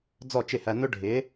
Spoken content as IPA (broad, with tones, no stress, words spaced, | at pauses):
d͡zɔ˥˩t͡ʃɪ˥˩hæ˧ nʊ˥ɖʱɪ˩˥